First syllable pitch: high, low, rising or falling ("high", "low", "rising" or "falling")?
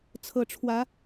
low